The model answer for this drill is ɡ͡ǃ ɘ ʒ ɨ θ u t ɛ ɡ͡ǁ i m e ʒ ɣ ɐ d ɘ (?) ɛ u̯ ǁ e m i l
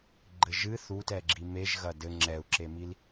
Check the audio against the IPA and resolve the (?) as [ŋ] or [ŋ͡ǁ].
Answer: ŋ͡ǁ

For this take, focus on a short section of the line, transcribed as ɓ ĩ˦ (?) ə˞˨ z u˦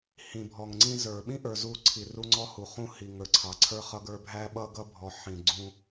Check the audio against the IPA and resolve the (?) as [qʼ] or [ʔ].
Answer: ʔ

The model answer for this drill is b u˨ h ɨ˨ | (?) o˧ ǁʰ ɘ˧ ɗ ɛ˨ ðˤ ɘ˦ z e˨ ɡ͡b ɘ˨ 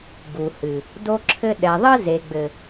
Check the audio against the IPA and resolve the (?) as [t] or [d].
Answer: d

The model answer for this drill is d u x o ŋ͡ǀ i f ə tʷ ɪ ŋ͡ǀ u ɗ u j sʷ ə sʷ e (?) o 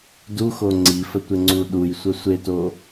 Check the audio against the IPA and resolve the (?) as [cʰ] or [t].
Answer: t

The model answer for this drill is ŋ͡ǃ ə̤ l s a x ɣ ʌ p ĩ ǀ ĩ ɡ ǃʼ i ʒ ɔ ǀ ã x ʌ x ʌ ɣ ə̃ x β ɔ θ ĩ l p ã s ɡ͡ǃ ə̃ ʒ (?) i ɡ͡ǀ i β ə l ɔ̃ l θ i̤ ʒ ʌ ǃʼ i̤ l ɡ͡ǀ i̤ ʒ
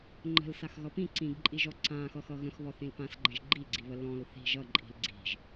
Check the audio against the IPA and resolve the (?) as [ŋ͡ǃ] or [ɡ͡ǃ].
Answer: ɡ͡ǃ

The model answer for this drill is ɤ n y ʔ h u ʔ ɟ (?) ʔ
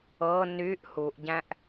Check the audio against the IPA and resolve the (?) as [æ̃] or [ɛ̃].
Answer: æ̃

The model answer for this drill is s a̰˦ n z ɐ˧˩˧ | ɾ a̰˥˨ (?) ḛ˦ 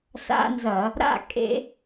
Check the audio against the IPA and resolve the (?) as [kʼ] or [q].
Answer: kʼ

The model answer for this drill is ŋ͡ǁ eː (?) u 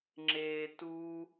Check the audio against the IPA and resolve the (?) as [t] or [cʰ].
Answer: t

